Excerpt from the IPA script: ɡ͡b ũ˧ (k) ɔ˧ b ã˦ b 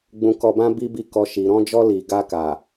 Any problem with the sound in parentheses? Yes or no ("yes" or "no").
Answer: no